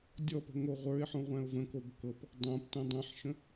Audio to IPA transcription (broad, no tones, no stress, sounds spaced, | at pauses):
dʲ ɔ p ə̤ ŋ o ʁʷ ə˞ ɪ̯ ħ õ ʁʷ æ̃ ʊ̯ v ə̃ k o b k ɤ p | dˤ õ p t ɛ̃ dˤ æ̃ ħ ʃ ə̃